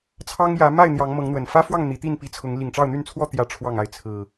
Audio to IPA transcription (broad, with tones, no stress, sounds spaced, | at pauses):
t͡sʰ ɑ˦ ŋ j ä˨˦ m a˥˨ ɪ̯ n̪ j ɑ˨˦ ŋ m ɤ˨˦ ŋ n̪ w ə˨˩ n f ä˦ f w ɑ˥˨ ŋ n̪ i˨˦ t̪ i˥˨ n p i˨˦ t͡sʰ ʊ˨˦ ŋ l i˨˩ ŋ ʈ͡ʂ ɑ˥˨ ʊ̯ n̪ y˥˨ n t͡sʰ w ɔ˥˨ t̪ j ä˥˨ ʈ͡ʂʰ w ɑ˥˨ ŋ a˥˨ ɪ̯ t͡sʰ ɹ̩˨˩